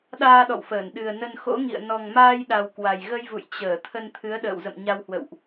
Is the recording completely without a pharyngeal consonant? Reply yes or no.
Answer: yes